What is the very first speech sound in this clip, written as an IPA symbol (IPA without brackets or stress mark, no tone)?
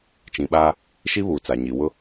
t͡ʃ